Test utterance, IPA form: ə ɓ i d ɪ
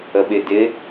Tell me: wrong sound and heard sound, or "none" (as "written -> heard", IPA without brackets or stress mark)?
i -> ɪ